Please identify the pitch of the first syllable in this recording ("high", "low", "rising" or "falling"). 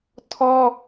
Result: high